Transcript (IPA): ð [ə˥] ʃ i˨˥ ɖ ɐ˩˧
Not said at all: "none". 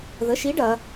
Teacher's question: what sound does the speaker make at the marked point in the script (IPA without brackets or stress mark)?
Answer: ə˨˥